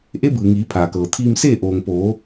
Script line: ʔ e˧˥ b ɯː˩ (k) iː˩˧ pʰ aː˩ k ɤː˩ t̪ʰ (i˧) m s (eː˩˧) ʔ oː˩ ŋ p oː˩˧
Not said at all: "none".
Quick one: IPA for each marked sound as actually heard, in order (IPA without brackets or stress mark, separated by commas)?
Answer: ŋ, iː˧, eː˥˨